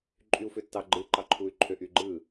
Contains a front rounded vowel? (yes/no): yes